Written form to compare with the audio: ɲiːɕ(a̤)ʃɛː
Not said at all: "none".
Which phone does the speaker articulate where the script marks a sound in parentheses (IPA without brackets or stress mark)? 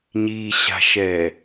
a̤